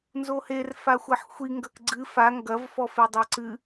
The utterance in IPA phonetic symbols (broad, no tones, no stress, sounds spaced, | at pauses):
n z o h e r f a xʷ ɐ ħ xʷ i ŋ ɡ ɐ k ɡ͡ǀ ɨ f a ŋ ɡ ɐ v f ɔ f e dˤ a ǀ ɨ